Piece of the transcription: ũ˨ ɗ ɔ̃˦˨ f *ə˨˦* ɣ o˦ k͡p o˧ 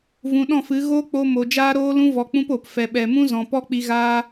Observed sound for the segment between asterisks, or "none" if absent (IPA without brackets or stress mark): ɨ˨˦